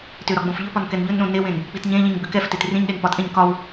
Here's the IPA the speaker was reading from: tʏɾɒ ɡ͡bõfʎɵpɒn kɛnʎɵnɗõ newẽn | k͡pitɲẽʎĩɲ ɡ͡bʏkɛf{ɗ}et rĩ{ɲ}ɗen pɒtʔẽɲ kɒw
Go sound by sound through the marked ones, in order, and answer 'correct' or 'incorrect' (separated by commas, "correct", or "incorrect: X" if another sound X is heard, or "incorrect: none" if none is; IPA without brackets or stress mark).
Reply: incorrect: t, correct